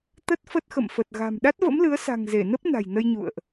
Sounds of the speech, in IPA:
t̪ə˦˥t̚fə˦˥t̚xə̰˧˨m fə˨˩t̚ ɣa̤˨˩m ɗa˦˥t̚və̰˧˥mlɨ˨˦ə̯sa̤˨˩ŋ ze˧˩nə˦˥p̚ na̤˨˩jnə˧jɲṵ˧˨ə̯ʔ

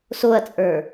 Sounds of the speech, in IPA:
soɐ̯t͡sʼə˞

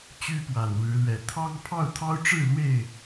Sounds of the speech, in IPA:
t͡ɕy˦pwa˨˩nɻɻ̩˨˦lɥɛ˨˦ t̪ʰɑ˦ŋ pʰɑ˥˨ʊ̯t̪ʰɑ˦ʊ̯ʈ͡ʂɻ̩˥˨ lwe˥˨ɪ̯

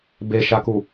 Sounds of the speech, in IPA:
beʃaku

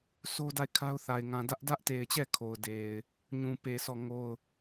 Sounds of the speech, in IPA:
so˦da˦˨ɪ̯kʰa˦ʊ̯θa˨ɪ̯ ŋã˨ dä˦ʔdä˦ʔte˨ɪ̯t͡ɕɛ˦˨ kʰo˨ʊ̯de˨ɪ̯ | ɲũ˨pe˨ sɔ˦˨ŋo˦˨ʊ̯

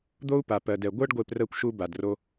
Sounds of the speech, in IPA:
d̪o˦u̯ pa˨pɜ˨dɛ˨ ɡʷɜ˦ɖɡʷe˧prɜ˧kʷʃu˧ ba˨dro˧

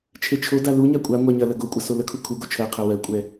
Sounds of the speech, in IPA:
t͡ʃʰet͡ʃʰoda luɲa kʷʼa ŋʷæɲɐlɐ ɡokʷʼɐ soləkʰu kʰuɡo t͡ʃʰɜqʰɜ wɜkʷʼɛ

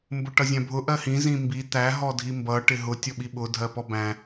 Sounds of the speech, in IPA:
mbʊʈʌzʲæ̃bʱʊ ʔɜhĩ zĩmbi t̪æ ɦɔdʱimbʌ ʈɪɦʊ tʲɔɓiɓʊ dʱɜpɔbæ̃

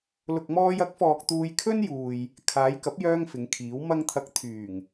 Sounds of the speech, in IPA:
lʊ˨k̚mɔː˧jɐ˨˥k̚fɔː˨k̚ t̪uː˧jkʰɵ˥njuː˨j | kʰaː˨˧jkɐ˨˥p̚jœː˧ŋ fɪ˨˧ŋkʰiː˨˥w mɐ˧ŋt̪ʰɐ˨˥k̚ t̪ʰyː˨˩ŋ

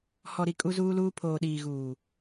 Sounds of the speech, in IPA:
hɔ˨ɾi˨ kʼu˦zuː˦luː˦ pʰoː˨ɗiː˨ɣuː˨

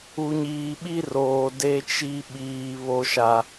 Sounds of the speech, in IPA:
u˨ɲiː˨ɓi˦roː˨ de˦t͡ʃi˦ ɓiː˨ βo˦ʃa˦

